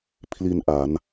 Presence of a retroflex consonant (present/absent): absent